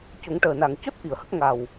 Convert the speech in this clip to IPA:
co˨˩˦ŋʈəː˨˩na˨˩ŋ co˦˥t̚ ʔi˨˩ə̯hə˦˥k̚ ŋa˨˩w

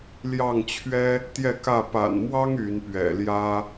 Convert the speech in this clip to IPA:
ljɑ˥˨ŋt͡ɕʰɥɛ˦ | t̪jɛ˥˨kä˥˨ pa̰˨˩nmwɑ˦ŋ y˨˦npɥɛ̰˨˩ljä˦

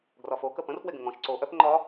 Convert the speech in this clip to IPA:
ɡrɒfo kəpə̃r fweɡə̃ŋɔ̃ʃ ǀo ʔœp ŋ͡ǃɒ

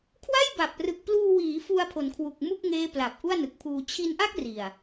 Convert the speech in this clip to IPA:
kʰwa˥˩jba˨˩p̚ rɯ˨˩k̚pluː˧wiː˩˦ fu˧a̯pʰo˩˦nkʰwu˨˩k̚ mu˥˩k̚ŋeː˦˥ pla˨˩p̚ʔu˥˩a̯nɯ˨˩k̚pʰuː˧ t͡ɕʰi˧nʔa˥˩k̚ ri˨˩a̯

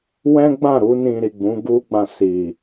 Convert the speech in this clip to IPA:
wɛ̃˦ɡ͡bã˦˨ ɾu˧nĩ˨ ɾi˨ɡ͡bũ˨˦ɡu˦ɡ͡bã˧ si˨

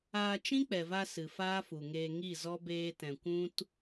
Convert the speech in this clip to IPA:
aː˧t͡ʃĩ˦k͡pɛ˨va˧ sɨ˨faː˦fu˨ŋeː˧ ŋi˦˨zɔ˦ beː˧tɛ̃˨ kʷũ˦t

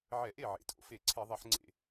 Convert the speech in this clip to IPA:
ʕɛ˧˩˧ʔe˥˩ ʕḛ˩˧tʼo̰˧˩˧fe˧˩˧ ǀʰe˧˩˧ðˤɛ˧˩˧ħŋ͡ǀḛ˧˩˧

